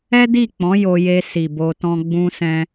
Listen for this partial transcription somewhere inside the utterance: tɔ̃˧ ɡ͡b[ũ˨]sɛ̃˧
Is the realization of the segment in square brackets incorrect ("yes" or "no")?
yes